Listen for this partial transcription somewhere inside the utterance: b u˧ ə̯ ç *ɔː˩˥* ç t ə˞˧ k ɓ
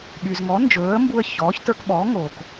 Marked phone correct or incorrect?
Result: correct